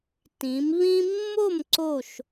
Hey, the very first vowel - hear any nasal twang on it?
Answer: yes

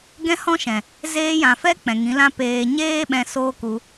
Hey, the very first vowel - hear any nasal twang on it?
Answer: yes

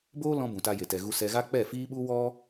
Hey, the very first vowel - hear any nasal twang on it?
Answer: no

